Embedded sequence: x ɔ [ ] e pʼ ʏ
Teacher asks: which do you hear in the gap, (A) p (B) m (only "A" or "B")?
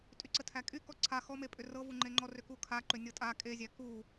B